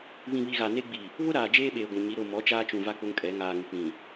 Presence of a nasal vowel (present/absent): present